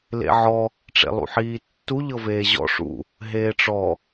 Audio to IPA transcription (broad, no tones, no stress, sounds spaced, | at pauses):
l ḛ ʕ ɔ | ʈ͡ʂ ḛ lˠ ṵ ħ iː tː u ʎ ɤ v eː ʑ ɔ̰ ʂ ṵ | ɦ eː ʈ͡ʂ ɔ